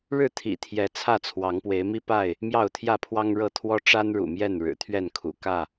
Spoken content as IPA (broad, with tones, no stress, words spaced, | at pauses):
ɻɻ̩˥˨t̪ʰḭ˨˩t̪ʰjɛ˨˦ t͡sʰä˥˨t͡sʰwɑ˨˦ŋpwe˨˦ɪ̯mi˦ pa˥˨ɪ̯ | mjɑ˥˨ʊ̯t̪ʰjä˥˨pʰwɑ˦ŋ ɻɤ˥˨ t̪ʰwɔ˦ʈ͡ʂa˦nɻṵ˨˩ mjɛ˥˨nɻɻ̩˨˩ t̪ʰɥɛ˥˨nkʰṵ˨˩ kä˥˨